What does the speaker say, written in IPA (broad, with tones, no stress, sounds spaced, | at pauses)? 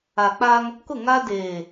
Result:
a˨ k͡p a˦ ŋ | k ʊ˦˨ ŋ a˦ d eː˨